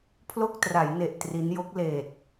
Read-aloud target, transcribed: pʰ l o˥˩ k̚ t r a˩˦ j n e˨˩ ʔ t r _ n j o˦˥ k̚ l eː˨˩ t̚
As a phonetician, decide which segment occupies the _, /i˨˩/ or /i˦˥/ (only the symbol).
i˦˥